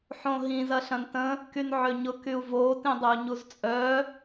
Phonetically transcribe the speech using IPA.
ħõɦĩz ɐɬɐ̃ntə̃ | kynʕøɲʊ kyu̯vo tĩdˤœu̯ɲuzt͡sʼœ

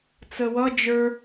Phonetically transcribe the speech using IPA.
t͡səwʌ d͡ʒə˞

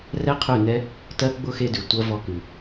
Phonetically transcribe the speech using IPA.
rɛ˦qʰʉ˦˨nɛ˦ | tɜ˦ ɡ͡bʊ˦˨xe˧dʉ˨ tʷɜ˦vɔ˦kʉ˧

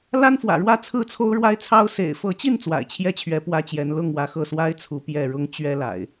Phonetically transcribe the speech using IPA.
la˦nfwä̰˨˩ɻwä˥˨ t͡sʰɹ̩˥˨t͡sʰo˦ʊ̯ɻwa˦ɪ̯t͡sʰɑ˦ʊ̯ sḛ˨˩ɪ̯fɤ˨˦t͡ɕi˥˨n t͡swa̰˨˩ɪ̯t͡ɕʰjɛ˥˨t͡ɕʰɥɛ˨˦ pwä˦t͡ɕjɛ˨˦n lʊ˥˨ŋ wä˨˦xɤ˥˨ swa˦ɪ̯ t͡sʰu˨˦pjɛ˥˨ɻʊ˦ŋ t͡ɕɥɛ˦la̰˨˩ɪ̯

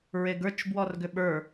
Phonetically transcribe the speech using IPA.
ɹeɡə˞t͡ʃ bwɔrɡʏɓə˞

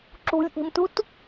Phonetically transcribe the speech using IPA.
ǁṳlʲʔi̤mtut

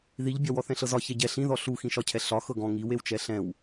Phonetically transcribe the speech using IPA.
ðiʎbʲɒ wɔθɛ̃ɬɤzɒ çɛɟɛ ɬĩðɔ ɬuxĩʃɒcʰɛ ɬɒ xɤɡɔ̃ ŋiw ewt͡ʃɛɬɛ̃w

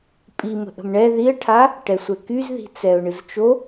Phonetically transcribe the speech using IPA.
pʼimə̤ ʔə̤mɳɛ ðiə̯ʈʰa | ʈɛsʷɛkyzði̤ t͡sɛʊ̯ɳɨzt͡ʃo

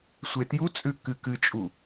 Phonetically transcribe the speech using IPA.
sʷetjut͡sʼʉ kɨkɨt͡ʃʼu

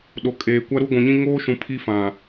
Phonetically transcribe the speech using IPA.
ɗo˨kʼeː˨ kʷa˦ɾu˦ɡʷũ˨ɲĩ˦ ŋoː˦ʃũ˨ pʰi˦fã˨

